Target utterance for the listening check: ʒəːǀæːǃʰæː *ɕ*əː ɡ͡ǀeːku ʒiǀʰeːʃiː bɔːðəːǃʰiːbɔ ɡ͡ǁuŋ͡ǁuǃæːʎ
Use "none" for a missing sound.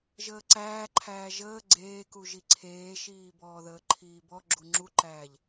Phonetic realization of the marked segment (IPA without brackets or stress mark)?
ʒ